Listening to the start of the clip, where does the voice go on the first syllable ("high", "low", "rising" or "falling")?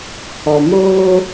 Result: low